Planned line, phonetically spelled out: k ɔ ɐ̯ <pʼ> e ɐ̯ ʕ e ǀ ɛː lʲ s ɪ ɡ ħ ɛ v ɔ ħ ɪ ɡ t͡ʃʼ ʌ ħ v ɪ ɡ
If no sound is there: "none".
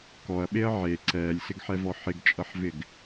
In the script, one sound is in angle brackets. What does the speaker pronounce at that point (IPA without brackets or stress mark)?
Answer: ɓ